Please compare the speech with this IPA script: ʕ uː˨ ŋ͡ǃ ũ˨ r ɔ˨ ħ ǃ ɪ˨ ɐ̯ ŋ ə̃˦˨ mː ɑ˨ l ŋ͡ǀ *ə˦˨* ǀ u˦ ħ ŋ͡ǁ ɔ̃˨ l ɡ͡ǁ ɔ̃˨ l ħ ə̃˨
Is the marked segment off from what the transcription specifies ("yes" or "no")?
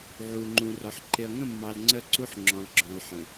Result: no